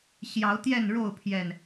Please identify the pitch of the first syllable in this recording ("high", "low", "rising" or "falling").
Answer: rising